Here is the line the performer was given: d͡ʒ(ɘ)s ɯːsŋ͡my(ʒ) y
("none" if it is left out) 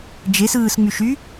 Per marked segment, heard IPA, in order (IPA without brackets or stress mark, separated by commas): e, ʃ